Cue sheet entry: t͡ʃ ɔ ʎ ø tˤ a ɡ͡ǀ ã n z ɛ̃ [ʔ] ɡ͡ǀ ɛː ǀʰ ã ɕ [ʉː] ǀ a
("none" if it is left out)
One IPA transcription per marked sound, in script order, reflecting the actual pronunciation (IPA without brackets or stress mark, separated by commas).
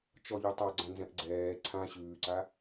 ʔ, ʉː